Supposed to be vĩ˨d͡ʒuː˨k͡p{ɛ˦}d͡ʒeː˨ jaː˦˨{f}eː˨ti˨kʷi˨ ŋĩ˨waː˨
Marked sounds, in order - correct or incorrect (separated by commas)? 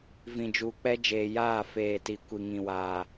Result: correct, correct